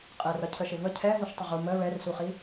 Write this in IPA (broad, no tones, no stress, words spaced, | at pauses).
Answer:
qʼɛrʌcʰəʃɪ və cʰɛ vuʃtˤəʁu mə ɹɛrsuχi